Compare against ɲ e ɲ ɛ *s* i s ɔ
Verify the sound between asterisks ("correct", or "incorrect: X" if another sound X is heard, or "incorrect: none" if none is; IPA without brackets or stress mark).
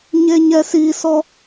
correct